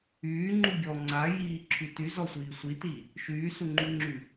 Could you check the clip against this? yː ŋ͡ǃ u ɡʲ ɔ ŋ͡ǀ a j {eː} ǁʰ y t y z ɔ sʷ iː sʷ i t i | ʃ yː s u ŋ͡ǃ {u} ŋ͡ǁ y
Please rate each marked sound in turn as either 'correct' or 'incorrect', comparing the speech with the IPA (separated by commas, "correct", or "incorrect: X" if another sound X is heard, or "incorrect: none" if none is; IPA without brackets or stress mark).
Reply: incorrect: iː, incorrect: y